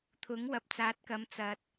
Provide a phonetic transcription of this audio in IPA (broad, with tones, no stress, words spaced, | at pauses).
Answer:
t̪ʰʊ˨˥ŋwɐ˨p̚t͡saː˨˥t̚ kɐ˨˧mt͡sɐ˨t̚